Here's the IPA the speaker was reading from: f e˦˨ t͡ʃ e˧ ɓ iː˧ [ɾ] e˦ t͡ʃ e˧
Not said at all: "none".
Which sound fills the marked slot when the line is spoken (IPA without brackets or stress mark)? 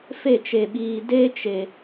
d